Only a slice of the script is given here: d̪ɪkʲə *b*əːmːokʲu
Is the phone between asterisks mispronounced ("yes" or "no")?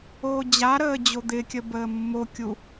no